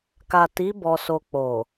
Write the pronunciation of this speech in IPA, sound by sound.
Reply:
ka˨ti˨˦ bɔ˧so˧ k͡po˨

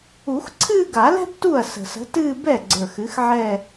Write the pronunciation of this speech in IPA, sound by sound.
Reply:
u˨˩˦xǀʰɨː˥˧ɡa˨˩˦lɛ̤˥b tu˥˩ɐ̯sə̤˨˩sə̤˨˥tɨː˥˧ bɛ˥˩ɡ͡ǀə˞˨˩x ɨ˨˥xʕɛ˥˧

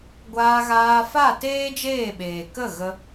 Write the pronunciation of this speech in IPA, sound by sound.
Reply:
ɡʷaː˧ɣaː˧ fa˦˨teː˦d͡ʒeː˦˨ɓeː˨ kə˦˨ ɣə˦

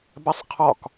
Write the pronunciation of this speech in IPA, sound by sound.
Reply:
basˤqʰɒk

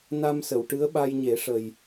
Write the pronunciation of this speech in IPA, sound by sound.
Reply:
na˧msə˨˩˨w ʈɨ˧˥ə̯ɓa˧jɲe˨˩˦ʂə˨˩j

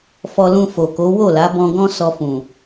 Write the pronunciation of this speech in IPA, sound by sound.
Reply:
fɔ˧lũ˧ fo˨ko˨˦ wo˦˨la˨˦ bɔ̃˧ɡɔ̃˦ sɔ˧fũ˨

